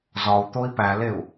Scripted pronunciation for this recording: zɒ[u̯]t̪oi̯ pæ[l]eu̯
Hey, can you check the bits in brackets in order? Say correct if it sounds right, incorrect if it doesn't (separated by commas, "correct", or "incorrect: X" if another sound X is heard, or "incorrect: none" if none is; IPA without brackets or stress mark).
correct, correct